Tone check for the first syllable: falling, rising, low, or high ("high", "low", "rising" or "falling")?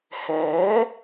rising